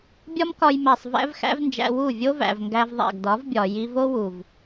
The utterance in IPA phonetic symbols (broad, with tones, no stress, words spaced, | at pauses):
bʲɒ˦mkɒ˧jmæ˨sˤ væ̰˦vxæ̰˦vnd͡ʒæ̰˧ wu˦˨vʲo˦væ̰˨v ŋɡæ˧vðˤæ̰˨ɡdɒ˨˦vbʲɒ˨ ji˧vo˦ wu˨v